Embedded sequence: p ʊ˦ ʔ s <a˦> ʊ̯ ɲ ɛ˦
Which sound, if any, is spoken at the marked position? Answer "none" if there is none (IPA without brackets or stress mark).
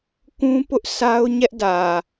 a˦